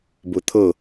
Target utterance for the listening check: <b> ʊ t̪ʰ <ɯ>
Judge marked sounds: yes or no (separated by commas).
yes, no